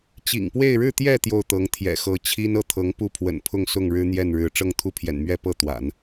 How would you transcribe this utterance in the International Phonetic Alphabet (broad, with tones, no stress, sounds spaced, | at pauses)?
t͡ɕ ḭ˨˩ ŋ p w e˥˧ ɪ̯ ɻ ɻ̩˥˧ t̪ j ɛ˥˧ t̪ j o˥˩ ʊ̯ t̪ ɤ˧˥ ŋ t̪ʰ j ɛ̰˨˩ x ɤ˧˥ t͡ɕʰ i˥ n ɤ˥˩ t̪ʰ ɤ˧˥ ŋ p u˥˩ pʰ w ə̰˨˩ n pʰ ʊ˥˧ ŋ s ʊ˥˩ ŋ ɻ ɻ̩˥ n̪ j ɛ˥˩ n ɻ ɻ̩˧˥ ʈ͡ʂ ɤ˥˧ ŋ t̪ʰ u˥˩ pʰ j ɛ̰˨˩ n m ɥ ɛ˥ p ɤ˥˩ t̪ w a̰˨˩˦ n